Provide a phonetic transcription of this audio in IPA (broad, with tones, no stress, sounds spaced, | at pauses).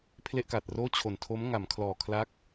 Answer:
pʰ l e˥˩ ʔ k a˨˩ t̚ r oː˥˩ t͡ɕʰ o˨˩ n tʰ o˦˥ m ŋ a˩˦ m kʰ l ɔː˨˩ kʰ l a˦˥ k̚